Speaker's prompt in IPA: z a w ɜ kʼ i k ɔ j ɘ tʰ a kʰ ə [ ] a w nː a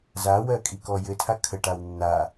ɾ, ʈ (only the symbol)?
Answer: ʈ